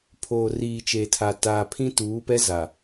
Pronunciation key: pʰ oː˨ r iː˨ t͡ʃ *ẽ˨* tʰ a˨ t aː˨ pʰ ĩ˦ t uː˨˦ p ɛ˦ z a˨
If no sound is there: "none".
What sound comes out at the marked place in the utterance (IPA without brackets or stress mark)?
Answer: e˨